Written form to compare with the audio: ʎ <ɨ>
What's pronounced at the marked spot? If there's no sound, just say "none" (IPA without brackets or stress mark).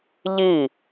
i